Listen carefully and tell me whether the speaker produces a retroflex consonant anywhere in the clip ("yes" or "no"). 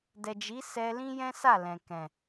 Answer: no